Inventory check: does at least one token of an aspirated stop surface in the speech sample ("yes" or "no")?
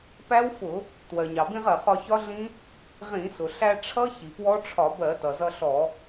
yes